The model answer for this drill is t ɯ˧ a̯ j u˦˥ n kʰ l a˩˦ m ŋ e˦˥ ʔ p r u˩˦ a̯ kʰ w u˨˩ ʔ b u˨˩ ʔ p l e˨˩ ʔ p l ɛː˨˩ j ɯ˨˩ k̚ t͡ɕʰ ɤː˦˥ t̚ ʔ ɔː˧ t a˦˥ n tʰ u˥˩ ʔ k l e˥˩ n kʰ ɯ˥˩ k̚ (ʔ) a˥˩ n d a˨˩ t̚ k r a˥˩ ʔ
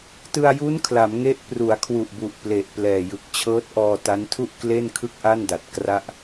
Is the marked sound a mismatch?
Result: no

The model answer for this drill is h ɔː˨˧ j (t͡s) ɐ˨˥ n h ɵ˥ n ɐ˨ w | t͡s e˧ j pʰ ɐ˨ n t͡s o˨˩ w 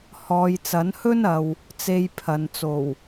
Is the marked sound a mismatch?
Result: no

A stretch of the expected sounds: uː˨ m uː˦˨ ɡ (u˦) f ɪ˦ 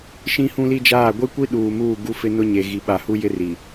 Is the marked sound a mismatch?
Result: no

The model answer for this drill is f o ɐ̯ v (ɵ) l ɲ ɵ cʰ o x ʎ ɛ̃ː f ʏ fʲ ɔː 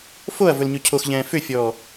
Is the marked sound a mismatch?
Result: no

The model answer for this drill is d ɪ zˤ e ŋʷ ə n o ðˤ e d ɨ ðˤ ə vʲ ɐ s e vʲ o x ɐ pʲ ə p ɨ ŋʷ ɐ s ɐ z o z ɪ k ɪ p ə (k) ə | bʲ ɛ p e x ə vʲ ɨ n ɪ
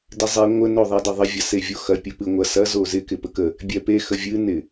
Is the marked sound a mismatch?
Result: no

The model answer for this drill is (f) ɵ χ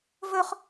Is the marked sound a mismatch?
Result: yes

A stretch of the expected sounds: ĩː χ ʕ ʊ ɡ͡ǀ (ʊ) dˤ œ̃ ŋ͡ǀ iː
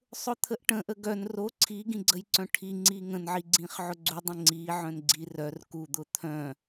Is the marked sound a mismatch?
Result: yes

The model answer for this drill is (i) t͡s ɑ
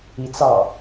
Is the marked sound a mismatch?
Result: no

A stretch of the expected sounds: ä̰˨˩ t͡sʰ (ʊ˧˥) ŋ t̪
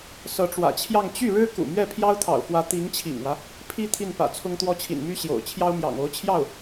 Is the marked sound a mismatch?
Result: yes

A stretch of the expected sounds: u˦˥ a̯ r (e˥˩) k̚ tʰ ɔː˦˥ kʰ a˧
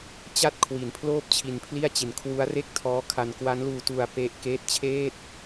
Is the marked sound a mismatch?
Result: no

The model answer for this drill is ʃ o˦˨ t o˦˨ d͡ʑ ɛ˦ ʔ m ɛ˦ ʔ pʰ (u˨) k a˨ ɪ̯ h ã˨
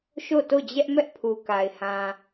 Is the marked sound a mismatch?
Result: no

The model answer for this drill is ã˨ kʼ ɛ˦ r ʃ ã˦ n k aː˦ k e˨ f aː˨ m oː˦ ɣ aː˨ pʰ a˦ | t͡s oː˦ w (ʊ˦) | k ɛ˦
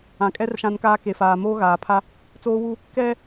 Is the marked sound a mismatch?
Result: yes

